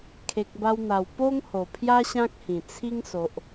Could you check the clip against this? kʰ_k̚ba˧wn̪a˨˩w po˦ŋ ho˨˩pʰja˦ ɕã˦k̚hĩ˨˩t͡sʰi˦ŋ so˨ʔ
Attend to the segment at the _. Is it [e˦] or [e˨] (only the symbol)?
e˨